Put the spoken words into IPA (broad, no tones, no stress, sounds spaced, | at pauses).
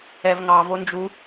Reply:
ɛ v ŋ ɑ v o n d͡ʒ u